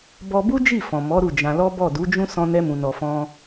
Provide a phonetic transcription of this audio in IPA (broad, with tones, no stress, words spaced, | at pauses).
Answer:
bɔ˧ bu˦d͡ʒi˦˨fɔ̃˨ mɔ˨˦ɾu˦˨d͡ʒã˧lɔ˦ bɔ˦˨du˨˦d͡ʒũ˦ sɔ̃˧nɛ˧mũ˨ nɔ˨fɔ̃˧